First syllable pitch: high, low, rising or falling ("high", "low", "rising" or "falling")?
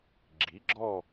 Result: rising